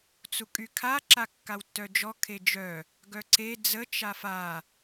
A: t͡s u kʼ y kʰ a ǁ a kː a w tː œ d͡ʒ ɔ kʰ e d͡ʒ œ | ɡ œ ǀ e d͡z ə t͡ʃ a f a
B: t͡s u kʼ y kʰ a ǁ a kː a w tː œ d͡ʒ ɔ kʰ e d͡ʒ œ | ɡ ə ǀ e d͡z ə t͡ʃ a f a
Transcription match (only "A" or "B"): A